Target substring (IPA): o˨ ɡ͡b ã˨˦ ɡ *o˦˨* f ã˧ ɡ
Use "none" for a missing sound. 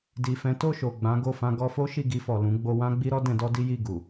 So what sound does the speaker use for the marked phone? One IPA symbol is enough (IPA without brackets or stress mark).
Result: o˦˨